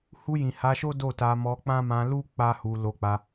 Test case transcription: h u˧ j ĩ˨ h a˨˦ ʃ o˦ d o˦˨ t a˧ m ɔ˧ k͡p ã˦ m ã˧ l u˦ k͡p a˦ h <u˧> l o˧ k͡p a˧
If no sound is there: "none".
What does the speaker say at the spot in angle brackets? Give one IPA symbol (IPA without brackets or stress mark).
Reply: u˧